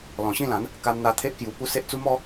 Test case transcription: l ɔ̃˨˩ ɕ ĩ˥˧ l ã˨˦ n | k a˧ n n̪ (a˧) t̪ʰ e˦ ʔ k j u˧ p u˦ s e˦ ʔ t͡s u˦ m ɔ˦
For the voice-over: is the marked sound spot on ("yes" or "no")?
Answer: yes